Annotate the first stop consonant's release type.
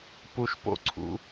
plain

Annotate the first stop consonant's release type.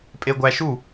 ejective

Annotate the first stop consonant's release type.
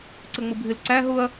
click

